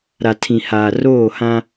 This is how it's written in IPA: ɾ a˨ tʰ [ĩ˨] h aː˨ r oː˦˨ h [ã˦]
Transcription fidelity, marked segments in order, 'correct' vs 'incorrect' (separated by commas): correct, correct